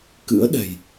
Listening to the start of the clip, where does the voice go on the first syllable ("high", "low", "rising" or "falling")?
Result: rising